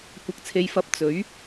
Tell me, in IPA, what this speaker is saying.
kʷ ɐ˧ k̚ t͡sʰ e˧ j f ɐ˧ p̚ t͡s ɵ˨˥ ɥ

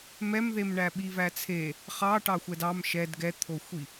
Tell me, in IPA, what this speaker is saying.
m ɛ m ð e m ɳ æ ɓ i v æ t͡sʰ e | χ ɑ ʈ ɑ xʷ ɛ d ɑ m ʃ ɛ d ɡ ɛ t̪ʰ o xʷ i

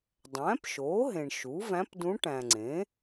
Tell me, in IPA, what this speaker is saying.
dˤ æ̃ː˩˥ p ʃ oː˩˥ ɦ ẽ˨ ɳ ʃ u˩˥ v æ̃˧˥ p d ũ˧˥ ʈ æ̃˨ ŋ͡ǀ ẽː˩˥

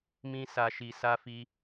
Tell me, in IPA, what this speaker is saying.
m ĩ˦ s a˧ ʃ i˧ s a˧ f i˧

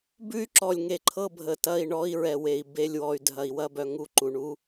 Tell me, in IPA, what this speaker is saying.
b ʉ˦ y̯ ǁ ɔ˨ lʲ ŋ e˨ ǃʰ ɤ˦˨ bʱ ə˨ t ɐ˦˨ i̯ ɳ ɔ˦ i̯ ɹ ɛ˨ w e˨ i̯ b e˦˨ lʲ w ɔ˨ y̯ dʱ ɐ˨ i̯ w ɐ˦˨ b œ˨ ŋ u˦˨ ǃ u˨ ɳ u˦

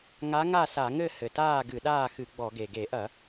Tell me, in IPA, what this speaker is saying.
ŋ a˧˥ ŋ a˥˨ s a˧˩˧ ŋ ɘ˥˨ h ɘ˨˩ t aː˥˨ ɡ ɨ˧˩˧ ɗ aː˥˨ x ɨ˧˩˧ ɡ͡b ɔ˧˩˧ ɡ e˨˩ ɡ e˧˩˧ ʔ ɐ˧˩˧

